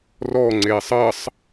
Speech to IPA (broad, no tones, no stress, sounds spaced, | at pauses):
r ɔ ŋ͡ǀ eː sˤ ɜ sˤ